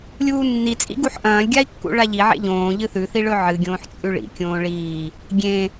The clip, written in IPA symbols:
lʲ uː nː i t͡sʼ ḭ ɡ u ħ ʔ ɐ̃ː lʲ ɡʲ a i̯ kː ṵ ɭ a ʎ i ʕ ḛ ʎ õː ʎ ɨ θ ʉ θ i ɭ ɵ ʕ ɨ ɡʲ õː ħ t͡sʼ ʉ ɭ ḭ kʲ õː ɭ iː | ɡʲ ẽ

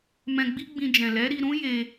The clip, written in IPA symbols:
m ɛ̃˧ ɡ͡b i˦ ɡ͡b ĩ˧ d͡ʒ ɛ̃˨ l ɛ˨˦ ɾ i˧ ɾ ũ˦ j e˧

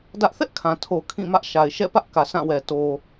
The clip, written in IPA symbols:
d ä˦ ʔ θ ɛ˦ ʔ kʰ ã˨ tʰ o˨ kʰ ĩ˦˨ m ä˦ ʔ ʃ a˨ ɪ̯ ʃ ɛ̰˦˨ p ä˦ ʔ k ä˨ s ã˦˨ w ɛ˨ t o˨

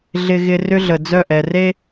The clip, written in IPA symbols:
ɮ ɪ˦ ɣ ɪ˦ r ʏ˦ ɮ ə˨ d͡z œ˦˨ ʔ ɛ˨ r e˦

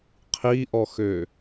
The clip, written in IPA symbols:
qʰ i ʔ ɔ x ø

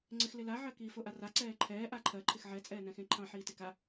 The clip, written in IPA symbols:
ŋ͡ǀ ɪ x l ɪ l a ʕ ɜ k iː f o ʔ a r a ǀ ɛː ǃʰ ɛː ʔ a ǃʰ ɜ ǃʰ ɪ x ʕ ɛ t͡sʼ ɛː n ɛ̃ x ẽ ǃʰ ɑ̃ ħ iː t ɪ k a

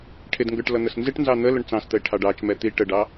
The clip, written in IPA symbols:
ʈʰ ɪ d ŋ ɡ ə˞ ʈ l ʌ n̪ ə s n z ɪ ʈ n z ɑ n̪ ə l ʊ ɳ t͡s ɑ̃ s t̪ ə ɪ̯ ʈʰ ɑ ɖ ɑ t͡ʃ m ɛ t̪ i ʈ ə ɖ ɑ

